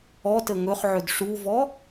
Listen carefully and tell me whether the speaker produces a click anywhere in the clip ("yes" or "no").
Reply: no